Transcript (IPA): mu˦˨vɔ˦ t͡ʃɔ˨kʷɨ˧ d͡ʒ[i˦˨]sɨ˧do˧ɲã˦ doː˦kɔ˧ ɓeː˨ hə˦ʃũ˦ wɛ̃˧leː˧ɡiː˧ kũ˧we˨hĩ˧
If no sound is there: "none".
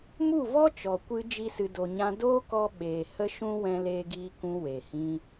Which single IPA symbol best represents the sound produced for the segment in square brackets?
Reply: i˦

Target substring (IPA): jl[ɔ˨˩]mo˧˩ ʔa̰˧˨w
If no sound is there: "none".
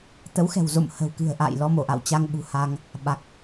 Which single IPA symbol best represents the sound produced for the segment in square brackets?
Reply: ɔ˧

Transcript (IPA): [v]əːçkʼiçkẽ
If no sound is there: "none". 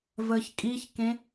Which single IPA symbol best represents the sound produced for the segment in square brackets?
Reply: v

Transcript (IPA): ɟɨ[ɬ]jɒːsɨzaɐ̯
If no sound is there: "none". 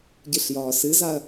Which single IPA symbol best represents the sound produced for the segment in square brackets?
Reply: ɬ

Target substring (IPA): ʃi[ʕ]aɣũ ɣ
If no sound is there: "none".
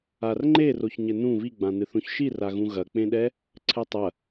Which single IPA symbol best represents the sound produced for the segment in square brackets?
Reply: r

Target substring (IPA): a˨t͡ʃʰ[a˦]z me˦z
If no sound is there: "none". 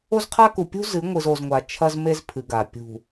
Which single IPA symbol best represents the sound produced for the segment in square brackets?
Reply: ɐ˦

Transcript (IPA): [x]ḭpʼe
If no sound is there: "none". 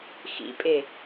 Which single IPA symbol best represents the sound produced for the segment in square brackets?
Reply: x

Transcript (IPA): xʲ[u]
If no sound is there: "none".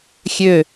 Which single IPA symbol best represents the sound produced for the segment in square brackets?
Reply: ø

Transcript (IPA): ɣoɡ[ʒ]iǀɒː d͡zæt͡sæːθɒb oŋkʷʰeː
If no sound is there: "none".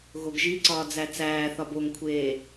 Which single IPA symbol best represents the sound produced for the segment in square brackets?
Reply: ʒ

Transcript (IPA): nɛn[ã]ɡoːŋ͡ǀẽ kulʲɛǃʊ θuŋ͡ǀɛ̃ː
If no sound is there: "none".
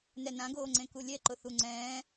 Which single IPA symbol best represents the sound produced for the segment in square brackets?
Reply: ã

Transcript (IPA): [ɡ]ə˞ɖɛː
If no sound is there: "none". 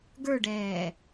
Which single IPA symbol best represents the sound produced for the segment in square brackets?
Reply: ɡ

